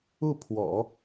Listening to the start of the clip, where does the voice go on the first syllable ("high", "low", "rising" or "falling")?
falling